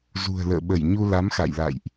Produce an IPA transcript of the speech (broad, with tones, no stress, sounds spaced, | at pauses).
z ṳ˨˩ ə̯ l ə̰ː˧˨ ɓ ə˧˩ j ɲ u˧ l a˨˦ m x a̰˧˨ j l a̰˧˨ j ʔ